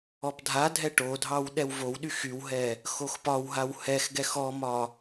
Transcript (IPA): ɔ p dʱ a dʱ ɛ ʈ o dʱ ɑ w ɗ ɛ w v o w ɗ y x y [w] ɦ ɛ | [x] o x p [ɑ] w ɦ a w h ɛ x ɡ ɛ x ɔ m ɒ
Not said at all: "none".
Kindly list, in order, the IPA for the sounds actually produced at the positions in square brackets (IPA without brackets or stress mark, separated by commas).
w, x, ɒ